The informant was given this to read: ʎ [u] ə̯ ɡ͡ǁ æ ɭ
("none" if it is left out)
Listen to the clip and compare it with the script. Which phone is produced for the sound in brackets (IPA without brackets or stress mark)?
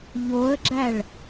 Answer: o